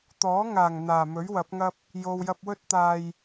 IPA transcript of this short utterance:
t̪ ɔː˨˥ ŋ aː˨˩ ŋ n̪ aː˨˩ m ɵ˨˥ ɥ w ɐ˨˥ p̚ ŋ ɐ˥ p̚ | j o˨ w j ɐ˧ p̚ w ɵ˥ t̚ t̪ aː˧ j

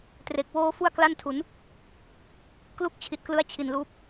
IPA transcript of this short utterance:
t r e˨˩ k̚ w oː˧ f u˥˩ a̯ k l a˥˩ n tʰ u˩˦ n | k l u˥˩ k̚ t͡ɕʰ i˨˩ t̚ k l ɯ˦˥ a̯ t͡ɕʰ i˨˩ n l uː˦˥ p̚

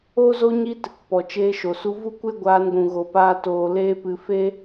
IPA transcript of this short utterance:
o˦ z o˦ ɲ i˦ t | p ɔ˨ t͡ʃ eː˧ ʃ o˨ s u˧ v u˦˨ kʷ e˦ ɡʷ aː˧ n ɡʷ ũ˨ ɣ o˨ p aː˧ t oː˨ l eː˧ p ɨ˨ f e˦

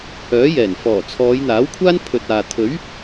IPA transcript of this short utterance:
h œː˨˥ j ɛː˨˩ n f ɔː˨˩ t͡sʰ ɔː˨˧ j n̪ aː˨˥ w kʷʰ aː˥ n pʰ ɵ˨ t̚ aː˨ t̪ʰ ɵ˨˥ ɥ

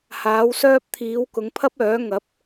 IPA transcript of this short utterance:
h aː˨˥ w s œː˥ p̚ t̪ʰ iː˨˥ w k ʊ˨˥ ŋ pʰ ɐ˥ p̚ œː˨˥ ŋ ɐ˨˥ p̚

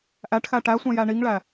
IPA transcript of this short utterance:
ʔ æ ʈ x æ ʈ æ sʷ ɛ̃ j æ ɳ i ŋ ɭ æ

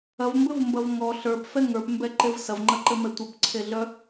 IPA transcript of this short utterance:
ɐ v m b ɘ v m b ɐ v ŋ ɔ ɬ ə˞ p f ɛ ŋ ə˞ p m b ɛ ǃ e v s ɐ v ŋ͡ǃ ɐ ǃ ɘ m ɛ tʷ œ p ǀʰ e ɮ œ

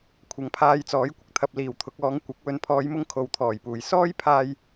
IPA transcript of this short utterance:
kʷʰ ɐ˨˧ ŋ pʰ aː˧ j t͡s ɔː˨˥ j kʷ ɪ˨ k̚ t̪ʰ ɐ˨ p̚ l iː˨˩ w t̪ʰ ʊ˨ k̚ ɔː˨˧ ŋ kʷ ɪ˨˥ k̚ w ɵ˨ n pʰ ɔː˨˧ j m ʊ˧ ŋ kʰ o˨ w t̪ʰ ɔː˨˩ j p uː˨˩ j s ɔː˥ j pʰ aː˧ j

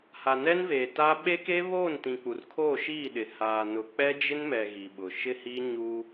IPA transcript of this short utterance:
h a˨ n ɛ˦ n v eː˨ t aː˦ ɓ e˦ k eː˦ β oː˦˨ n t ĩ˨ k͡p u˨ r kʰ oː˦˨ ʃ iː˦˨ ɗ ɪ˨ h aː˨ n ʊ˨ k͡p ɛ˦ d͡ʒ ɪ˦ n m ɛ˨ ɣ i˨ ɓ ʊ˨ ʃ ɪ˦ h i˦ ɲ u˦

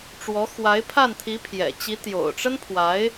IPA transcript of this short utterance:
ʈ͡ʂ w ɔ˧˥ x w a˧˥ ɪ̯ pʰ a˥˩ n t̪ʰ i˧˥ pʰ j ɛ̰˨˩ t͡ɕ i˧˥ t̪ j o̰˨˩ ʊ̯ ʈ͡ʂ ə˥ n pʰ w a˧˥ ɪ̯

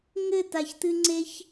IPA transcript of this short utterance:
ŋ ɘ t̪ a ç t̪ ɨ ŋ͡ǀ e ç

